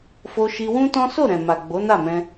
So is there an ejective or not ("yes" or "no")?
no